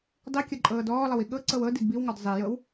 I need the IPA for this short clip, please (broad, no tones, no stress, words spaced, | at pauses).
dˤikʲɤ ǃʼɤːdɔːlˠəwi ɠɤ ǀɤwɤ didbiwŋɔd zˤijɤw